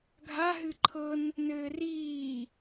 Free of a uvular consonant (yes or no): yes